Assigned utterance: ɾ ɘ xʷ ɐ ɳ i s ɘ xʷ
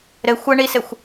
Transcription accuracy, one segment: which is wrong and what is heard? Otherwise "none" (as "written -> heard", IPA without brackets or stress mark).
none